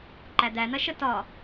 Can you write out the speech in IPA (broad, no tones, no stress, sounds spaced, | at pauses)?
ǃ æ d̪ æ n̪ ɐ ʃ ə t ɒ